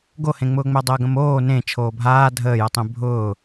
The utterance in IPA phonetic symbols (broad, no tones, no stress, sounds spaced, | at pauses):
ɡ o h ẽ ŋ͡m ʊː ŋ͡m ɛ dˤ əː ɡ ə̃ m oː n ẽ t͡ʃʰ oː bʱ aː dʱ əː j ə tˤ ẽ bʱ ʊː